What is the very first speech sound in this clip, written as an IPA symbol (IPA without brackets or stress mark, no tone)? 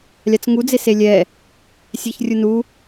lʲ